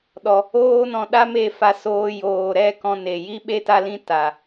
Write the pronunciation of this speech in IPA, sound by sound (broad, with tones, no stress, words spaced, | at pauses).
ɗɔ˦ | oː˦nɔ̃˧ɗa˦me˦˨ fa˧soː˧ joː˨ɾɛ˦˨ kɔ̃˦ne˧ ji˦ɓe˦ta˦lĩ˦ ta˧